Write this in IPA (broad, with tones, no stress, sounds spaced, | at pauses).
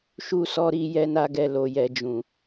ʃ u˧ s ɔ˧ ɾ i˧ j ɛ˧ n a˧ ɡ ɛ˨ l o˨ j ɛ˨ d͡ʒ ũ˨